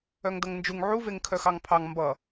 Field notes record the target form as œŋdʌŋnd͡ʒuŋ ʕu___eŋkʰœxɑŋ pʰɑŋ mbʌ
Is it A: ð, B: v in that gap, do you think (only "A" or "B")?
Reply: B